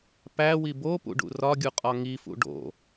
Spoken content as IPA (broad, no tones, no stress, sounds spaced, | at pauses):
p æ w i b o p ṵ ɖ ṵ r ɒ ɡʲ u qʼ ɒ ŋ i f ṵ ɖ o̰